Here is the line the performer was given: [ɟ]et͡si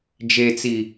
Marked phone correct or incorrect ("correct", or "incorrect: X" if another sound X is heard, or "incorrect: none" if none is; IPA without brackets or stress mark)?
incorrect: d͡ʒ